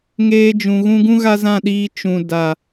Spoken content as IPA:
ŋeː˧d͡ʒũ˨ɣũ˧ɡũ˦ ɣa˦zã˦˨ɗiː˧ t͡ʃũ˨ da˨

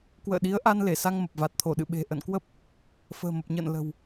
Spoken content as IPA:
kwə̰ː˧˨ɗi˨˦ə̯ʔa˧n le˧˩sa˧ŋmə˨˩p̚va˨˩t̚ t̪ʰo˧˩ɗɨ̰˧˨ɓe̤˨˩ ʔə̰˧˨nkwə˦˥p̚ | fə̤ː˨˩mə˨˩p̚ɲə̰ː˧˨n lə̤˨˩w

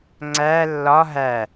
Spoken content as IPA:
ŋ͡ǀæ lːɒ ɦæ

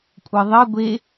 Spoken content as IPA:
kʷʼɯðˤɘ ɡʷe

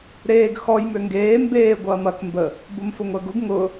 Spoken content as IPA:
ɾeːɡ xɔj møŋɡeː mbeː ɡʷɐːmɐk mbə | bʊmfʊŋʷɛɡʊɡ ŋʊ

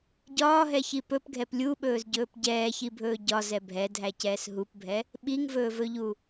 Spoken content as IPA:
ɟɒːɦɛçi pɵpɡʱɛp lʲuɓɵːzɟɵːp ɟɛːçibʱɵː ɟɒzɛ bʱɛdʱæcɛːs ɦupbʱɛ | ɓiŋvɵːvɵʎu

